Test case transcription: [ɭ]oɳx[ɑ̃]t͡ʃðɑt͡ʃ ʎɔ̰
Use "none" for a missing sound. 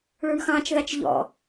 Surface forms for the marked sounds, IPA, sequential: ɭ, ɑ̃

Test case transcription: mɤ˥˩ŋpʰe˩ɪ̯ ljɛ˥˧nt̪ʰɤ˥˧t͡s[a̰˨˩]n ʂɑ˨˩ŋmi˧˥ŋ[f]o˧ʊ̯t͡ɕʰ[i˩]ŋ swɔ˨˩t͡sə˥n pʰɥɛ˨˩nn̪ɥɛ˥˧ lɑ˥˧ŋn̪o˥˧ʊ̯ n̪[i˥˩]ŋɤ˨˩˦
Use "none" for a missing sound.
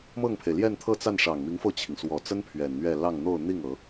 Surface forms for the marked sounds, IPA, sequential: a˥˩, f, i˩, i˥˩

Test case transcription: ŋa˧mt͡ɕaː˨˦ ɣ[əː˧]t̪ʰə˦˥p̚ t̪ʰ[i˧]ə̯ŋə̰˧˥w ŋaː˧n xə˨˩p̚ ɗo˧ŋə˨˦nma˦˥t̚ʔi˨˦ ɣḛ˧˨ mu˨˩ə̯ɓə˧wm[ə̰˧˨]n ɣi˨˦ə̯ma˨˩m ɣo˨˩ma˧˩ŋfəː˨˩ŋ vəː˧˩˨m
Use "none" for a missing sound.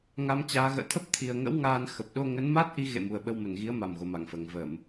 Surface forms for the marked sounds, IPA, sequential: ə̰ː˧˨, i˨˩, ə˧˩

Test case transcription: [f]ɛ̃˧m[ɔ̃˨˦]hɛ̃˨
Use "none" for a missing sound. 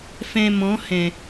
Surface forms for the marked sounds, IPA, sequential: f, ɔ̃˨˦

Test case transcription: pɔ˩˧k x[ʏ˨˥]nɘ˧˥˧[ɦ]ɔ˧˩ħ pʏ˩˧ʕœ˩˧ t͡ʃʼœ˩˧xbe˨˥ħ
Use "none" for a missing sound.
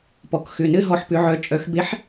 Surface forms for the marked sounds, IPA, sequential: ʏ˩˧˩, ɦ

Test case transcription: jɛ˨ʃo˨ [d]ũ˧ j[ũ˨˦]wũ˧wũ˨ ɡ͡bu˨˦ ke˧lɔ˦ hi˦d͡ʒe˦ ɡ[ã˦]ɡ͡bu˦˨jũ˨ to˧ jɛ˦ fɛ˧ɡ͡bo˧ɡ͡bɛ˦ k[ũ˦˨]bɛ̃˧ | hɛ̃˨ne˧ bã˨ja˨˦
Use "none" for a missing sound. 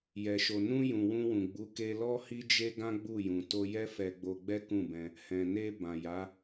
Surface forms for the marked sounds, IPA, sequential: n, ũ˨, ã˦, ũ˦˨

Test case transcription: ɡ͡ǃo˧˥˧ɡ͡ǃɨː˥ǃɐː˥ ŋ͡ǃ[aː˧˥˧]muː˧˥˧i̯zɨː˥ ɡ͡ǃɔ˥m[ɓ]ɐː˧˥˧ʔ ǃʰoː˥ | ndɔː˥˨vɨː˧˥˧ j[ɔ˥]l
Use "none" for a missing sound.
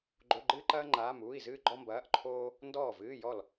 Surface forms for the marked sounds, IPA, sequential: aː˧˥˧, b, ɔ˥˨

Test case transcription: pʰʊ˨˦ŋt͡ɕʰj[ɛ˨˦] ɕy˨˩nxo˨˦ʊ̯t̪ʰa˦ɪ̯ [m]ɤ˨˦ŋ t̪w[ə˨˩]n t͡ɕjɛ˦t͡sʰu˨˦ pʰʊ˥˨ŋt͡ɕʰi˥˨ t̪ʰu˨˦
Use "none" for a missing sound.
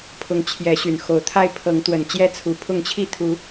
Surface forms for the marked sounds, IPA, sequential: ɛ˨˦, pʰ, ə˨˩

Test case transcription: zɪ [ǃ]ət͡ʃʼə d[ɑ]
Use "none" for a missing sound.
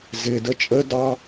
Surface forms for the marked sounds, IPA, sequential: d, ɑ

